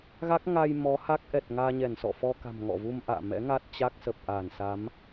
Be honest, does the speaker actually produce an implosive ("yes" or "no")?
no